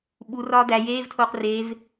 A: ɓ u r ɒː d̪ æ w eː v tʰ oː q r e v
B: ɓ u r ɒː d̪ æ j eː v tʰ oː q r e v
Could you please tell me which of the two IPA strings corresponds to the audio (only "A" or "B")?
B